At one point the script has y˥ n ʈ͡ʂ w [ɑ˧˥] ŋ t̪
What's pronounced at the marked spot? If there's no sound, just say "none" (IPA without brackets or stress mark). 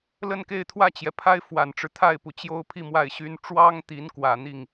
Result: ɑ˥